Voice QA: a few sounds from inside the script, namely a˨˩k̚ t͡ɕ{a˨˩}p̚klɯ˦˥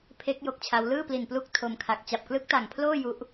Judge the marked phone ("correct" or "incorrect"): correct